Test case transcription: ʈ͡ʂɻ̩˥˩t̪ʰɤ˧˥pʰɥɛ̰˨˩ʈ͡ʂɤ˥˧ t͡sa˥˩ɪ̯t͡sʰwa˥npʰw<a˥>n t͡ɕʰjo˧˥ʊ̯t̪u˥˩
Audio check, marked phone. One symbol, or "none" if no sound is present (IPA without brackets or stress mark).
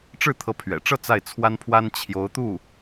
a˥